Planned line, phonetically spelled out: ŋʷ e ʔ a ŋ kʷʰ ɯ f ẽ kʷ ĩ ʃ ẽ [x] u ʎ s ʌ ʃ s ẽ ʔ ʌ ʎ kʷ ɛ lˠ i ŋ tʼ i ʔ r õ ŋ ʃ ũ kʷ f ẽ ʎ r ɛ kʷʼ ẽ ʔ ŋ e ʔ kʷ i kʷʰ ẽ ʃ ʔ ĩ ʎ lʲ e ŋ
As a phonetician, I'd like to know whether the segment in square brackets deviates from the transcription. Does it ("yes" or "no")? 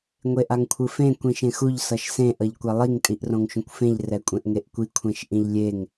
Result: no